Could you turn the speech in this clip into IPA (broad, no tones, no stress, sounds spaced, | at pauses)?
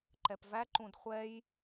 ǃ ɛ p v æ ǃ ũ d χʷ ɛ j